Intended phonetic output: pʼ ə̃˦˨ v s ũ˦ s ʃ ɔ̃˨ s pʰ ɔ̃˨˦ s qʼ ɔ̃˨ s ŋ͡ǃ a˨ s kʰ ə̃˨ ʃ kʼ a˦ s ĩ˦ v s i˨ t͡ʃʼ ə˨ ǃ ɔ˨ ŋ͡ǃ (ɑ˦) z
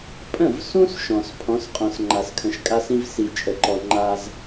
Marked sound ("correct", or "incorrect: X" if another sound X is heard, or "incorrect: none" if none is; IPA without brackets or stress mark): incorrect: a˦